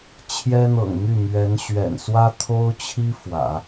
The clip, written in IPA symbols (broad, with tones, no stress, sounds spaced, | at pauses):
t͡ɕʰ j ɛ˥ n̪ ɤ̰˨˩ ŋ m y˥˩ m ɥ ɛ˧˥ n ɕ ɥ ɛ̰˨˩ n s w ä˥ t̪ʰ o˥ ʊ̯ t͡ɕʰ i˥ f w ä̰˨˩˦